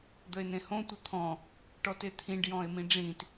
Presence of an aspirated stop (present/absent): present